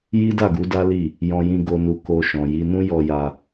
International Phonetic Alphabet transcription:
j i˦ d a˦˨ ɡ u˨˦ d a˦ l i˦˨ | j ɔ̃˧ j ĩ˧ ɡ o˧ n u˧ k o˧ ʃ ɔ̃˨ j i˧ n ũ˦ j ɔ˧ j a˧

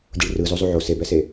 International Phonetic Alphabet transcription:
dʲ u ɭ r ɯ z o zˤ u ʕ o s e b ɛ s e

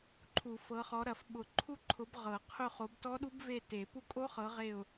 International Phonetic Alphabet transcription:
ǃʰ u˨˩˦ f ɤ˨˦ χ ɔ˨˦ ɾ ɐ˨˩˦ f ɓ ʊ˨˩˦ ǃʰ u˦˨ ǃʰ ʊ˨˦ b ʁ ɤ˨˩˦ qʰ ʊ˦˨ χ o˨˦ b t ɔ˦˥ ɗ u˦˥ b v e˦˨ t e˨˩˦ p u˦˨ kʼ o˦˥ χ ɤ˨˦ ʁ e˦˨ ʊ̯

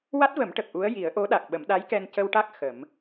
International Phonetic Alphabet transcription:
w a˦˥ t̚ v ə˨˩˦ m ʈ ə˨˩ k̚ ʔ u˧˥ ə̯ j i˨˩˦ ə̯ ʔ o˧˥ ɗ a˨˩ k̚ ɓ ə˨˩˦ m ɗ a˧˥ j k ɛ˧ n c ə˧ w ʈ a˦˥ k̚ x ə˨˩˦ m

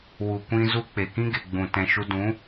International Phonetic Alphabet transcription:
w u˨ kʷ ĩ˧ z u˧ k͡p e˨ k ĩ˦ ɡ e˨ ɡ͡b ũ˨ t ɛ̃˨ ʃ u˧ d ũ˨˦

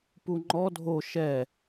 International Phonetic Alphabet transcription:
p u ŋ͡ǃ ɔ dʱ o ʃ ɛ

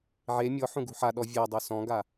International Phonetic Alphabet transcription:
ʕ e mʲ ɔ ħ ũ ɡ ṳ ħ a ɗ ɔ vʲ ɔ dˤ u s ɔ̃ ɡ a

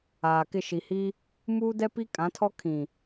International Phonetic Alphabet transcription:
aː˨ k ɪ˦˨ ʃ i˨ h i˦ | m uː˦ d ɛ˦ p i˦ kʼ ã˨˦ tʰ ɔ˦ kʰ ĩ˨

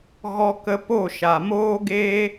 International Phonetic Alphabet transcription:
ɣ ɔ˦ k ə˦ p o˦˨ ʃ a˨ m oː˦ ɡ eː˦

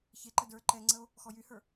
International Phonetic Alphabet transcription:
ç e ǃ ə d ə˞ ǃ ɛ ŋ͡ǀ ə o̯ | x ɔ j y h ə˞

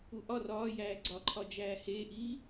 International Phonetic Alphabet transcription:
u ʔ ɒ r ɒː j æː ɡ͡ǀ ɒ ǃʰ ɒ d͡ʒ æː h eː ʔ iː

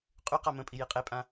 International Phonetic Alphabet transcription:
qʼ ʉ q a m ə̃ pʼ i j i qʼ e pʼ ã

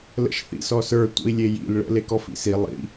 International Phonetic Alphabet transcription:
l ə̰ ʃ θ ḭ s ɔ s ə˞ tʷ ə̰ i̯ lʲ e j ḭ l ɭ ə̰ l e k ɔ f ḭ s i lˠ ḭ

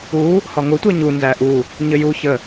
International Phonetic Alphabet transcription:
u | h ɒ ŋ ʊ tʷ ɜ ɲ u n z æ ʔ u | ɲ ə j u ç ə

